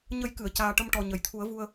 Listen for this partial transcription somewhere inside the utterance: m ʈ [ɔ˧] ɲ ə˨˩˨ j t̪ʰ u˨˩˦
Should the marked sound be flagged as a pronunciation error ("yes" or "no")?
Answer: yes